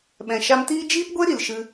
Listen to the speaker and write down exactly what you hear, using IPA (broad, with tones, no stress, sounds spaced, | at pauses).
ɓ ɛ̃˨ ʃ a˧ m t iː˦ d͡ʒ iː˦ p ɡʷ e˦ ɾ i˨ l ʃ ɨ˧